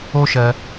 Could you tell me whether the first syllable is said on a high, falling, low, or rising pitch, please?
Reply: high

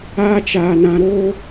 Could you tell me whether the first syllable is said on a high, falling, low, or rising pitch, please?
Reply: high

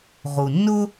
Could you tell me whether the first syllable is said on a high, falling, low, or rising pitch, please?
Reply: low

